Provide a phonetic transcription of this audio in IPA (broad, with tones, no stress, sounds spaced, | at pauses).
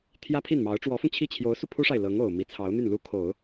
t̪ʰ j ä˥ pʰ i˥˩ n m ɑ˧˥ ʊ̯ ʈ͡ʂ w ɔ˧˥ f ʊ˧ ŋ t͡ɕʰ i˥˩ t͡ɕʰ j o˧˥ ʊ̯ s u˧ pʰ u˥ ʂ a˨ ɪ̯ l ɤ˧˥ ŋ o˨˩ ʊ̯ m i˧˥ t͡sʰ ɑ˧˥ ʊ̯ n̪ y˥˩ n l u˥ kʰ o˨˩˦ ʊ̯